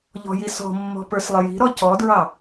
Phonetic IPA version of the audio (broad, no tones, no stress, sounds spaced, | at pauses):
ʎ ɔ̤ j i s ɔ̤ mː ɔ̤ p ə˞ s lˠ ɪ j i̤ ɾ ɔ c ɔ d ɹ ɑ